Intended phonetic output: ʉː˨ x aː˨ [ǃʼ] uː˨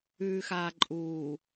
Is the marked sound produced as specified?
yes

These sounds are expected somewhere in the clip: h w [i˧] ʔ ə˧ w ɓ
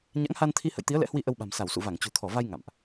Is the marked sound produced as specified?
yes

